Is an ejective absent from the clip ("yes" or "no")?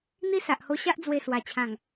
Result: yes